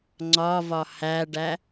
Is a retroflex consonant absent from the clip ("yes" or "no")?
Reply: no